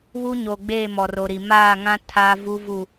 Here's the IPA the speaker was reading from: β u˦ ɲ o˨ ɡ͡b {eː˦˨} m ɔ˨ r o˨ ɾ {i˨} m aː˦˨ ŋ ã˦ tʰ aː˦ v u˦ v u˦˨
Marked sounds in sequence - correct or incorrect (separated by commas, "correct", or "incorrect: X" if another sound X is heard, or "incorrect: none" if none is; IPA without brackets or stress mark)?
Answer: correct, correct